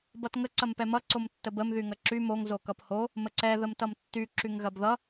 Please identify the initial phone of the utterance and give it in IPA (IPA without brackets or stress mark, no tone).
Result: b